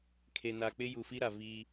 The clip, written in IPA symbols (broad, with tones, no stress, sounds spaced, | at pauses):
kʰ e˨ n a˨ k͡p ɪ˦ j u˨ f i˦ ɾ a˨ v i˦